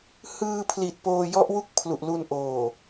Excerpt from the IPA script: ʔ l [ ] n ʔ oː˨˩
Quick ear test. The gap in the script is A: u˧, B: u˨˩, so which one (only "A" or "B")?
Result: A